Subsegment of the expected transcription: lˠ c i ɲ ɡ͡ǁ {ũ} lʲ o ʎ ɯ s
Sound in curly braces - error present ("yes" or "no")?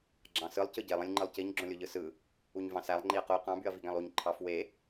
yes